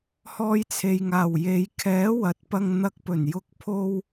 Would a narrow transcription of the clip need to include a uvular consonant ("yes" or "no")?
no